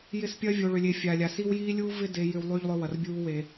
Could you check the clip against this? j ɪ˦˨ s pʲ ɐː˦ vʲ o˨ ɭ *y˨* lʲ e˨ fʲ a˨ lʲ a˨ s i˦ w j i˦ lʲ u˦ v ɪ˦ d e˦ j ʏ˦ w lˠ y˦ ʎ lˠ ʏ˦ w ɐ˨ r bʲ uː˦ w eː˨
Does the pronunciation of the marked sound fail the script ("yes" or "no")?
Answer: yes